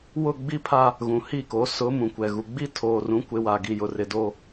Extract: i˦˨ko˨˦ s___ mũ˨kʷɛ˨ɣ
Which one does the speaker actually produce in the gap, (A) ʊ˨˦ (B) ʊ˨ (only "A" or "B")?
A